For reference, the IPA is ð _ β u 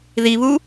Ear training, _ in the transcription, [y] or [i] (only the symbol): i